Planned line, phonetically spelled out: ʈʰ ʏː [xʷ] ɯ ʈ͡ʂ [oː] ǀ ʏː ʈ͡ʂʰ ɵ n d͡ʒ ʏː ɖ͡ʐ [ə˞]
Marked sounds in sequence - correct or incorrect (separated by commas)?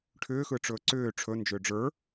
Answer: incorrect, incorrect, correct